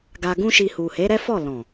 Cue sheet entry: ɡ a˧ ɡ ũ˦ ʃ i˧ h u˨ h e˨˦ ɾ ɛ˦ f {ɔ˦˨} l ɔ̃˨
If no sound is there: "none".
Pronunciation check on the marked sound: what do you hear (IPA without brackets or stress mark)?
ɔ˦˨